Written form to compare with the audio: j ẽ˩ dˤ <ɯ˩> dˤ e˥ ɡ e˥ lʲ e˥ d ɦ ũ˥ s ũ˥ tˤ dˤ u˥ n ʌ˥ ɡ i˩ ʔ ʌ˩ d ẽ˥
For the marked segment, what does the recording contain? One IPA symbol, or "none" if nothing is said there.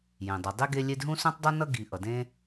ɯ˩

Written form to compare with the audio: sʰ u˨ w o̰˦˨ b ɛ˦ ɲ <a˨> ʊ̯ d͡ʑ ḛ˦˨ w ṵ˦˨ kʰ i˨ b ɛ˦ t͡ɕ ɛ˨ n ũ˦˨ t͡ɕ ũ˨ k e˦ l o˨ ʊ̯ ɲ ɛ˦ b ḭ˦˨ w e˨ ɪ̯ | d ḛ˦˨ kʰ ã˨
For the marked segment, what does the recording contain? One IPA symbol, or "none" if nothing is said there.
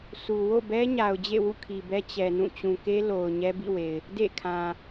a˨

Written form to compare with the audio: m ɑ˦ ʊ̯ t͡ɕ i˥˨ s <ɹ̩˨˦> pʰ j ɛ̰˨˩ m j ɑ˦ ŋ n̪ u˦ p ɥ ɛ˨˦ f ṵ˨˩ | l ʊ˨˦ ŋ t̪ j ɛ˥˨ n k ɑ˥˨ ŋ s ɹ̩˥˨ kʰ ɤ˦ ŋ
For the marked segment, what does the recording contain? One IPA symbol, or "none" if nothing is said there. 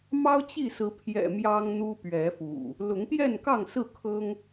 ɹ̩˨˦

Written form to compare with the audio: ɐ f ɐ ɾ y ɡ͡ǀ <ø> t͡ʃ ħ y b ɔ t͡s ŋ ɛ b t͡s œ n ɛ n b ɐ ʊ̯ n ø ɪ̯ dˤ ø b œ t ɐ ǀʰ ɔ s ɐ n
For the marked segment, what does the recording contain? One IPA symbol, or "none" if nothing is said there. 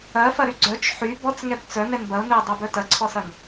œ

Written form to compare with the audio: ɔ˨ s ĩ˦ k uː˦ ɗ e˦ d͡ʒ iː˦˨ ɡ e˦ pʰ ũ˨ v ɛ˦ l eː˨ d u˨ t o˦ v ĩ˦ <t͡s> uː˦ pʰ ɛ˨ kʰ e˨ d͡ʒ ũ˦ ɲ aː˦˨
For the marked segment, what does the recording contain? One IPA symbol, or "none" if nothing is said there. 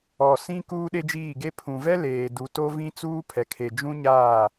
t͡s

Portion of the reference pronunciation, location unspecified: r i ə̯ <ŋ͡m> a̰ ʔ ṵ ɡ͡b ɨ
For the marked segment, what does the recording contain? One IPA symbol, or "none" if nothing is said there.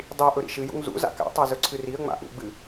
ŋ͡m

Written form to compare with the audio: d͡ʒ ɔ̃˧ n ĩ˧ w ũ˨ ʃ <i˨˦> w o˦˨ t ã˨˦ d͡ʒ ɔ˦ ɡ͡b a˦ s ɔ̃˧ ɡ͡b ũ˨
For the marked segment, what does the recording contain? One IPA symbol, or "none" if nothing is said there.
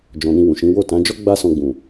ĩ˨˦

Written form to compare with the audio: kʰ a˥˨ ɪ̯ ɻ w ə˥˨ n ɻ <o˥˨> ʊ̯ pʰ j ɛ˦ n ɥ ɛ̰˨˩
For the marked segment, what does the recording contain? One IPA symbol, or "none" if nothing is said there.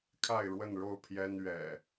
o˥˨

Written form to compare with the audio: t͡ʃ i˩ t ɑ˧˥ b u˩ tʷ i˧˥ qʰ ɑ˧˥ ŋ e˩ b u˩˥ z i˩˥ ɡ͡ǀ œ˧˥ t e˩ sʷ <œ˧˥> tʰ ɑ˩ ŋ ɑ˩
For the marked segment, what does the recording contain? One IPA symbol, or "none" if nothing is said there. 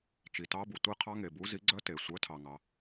œ˩˥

